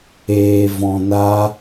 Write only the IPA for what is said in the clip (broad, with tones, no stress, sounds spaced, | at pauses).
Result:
eː˧ v ɔ̃˧ n a˦